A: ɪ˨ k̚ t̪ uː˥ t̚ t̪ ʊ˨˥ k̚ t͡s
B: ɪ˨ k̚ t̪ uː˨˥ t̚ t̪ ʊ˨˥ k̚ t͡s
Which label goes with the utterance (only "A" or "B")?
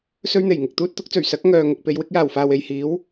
A